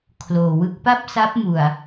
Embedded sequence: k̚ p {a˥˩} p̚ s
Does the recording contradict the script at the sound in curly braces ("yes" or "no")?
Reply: no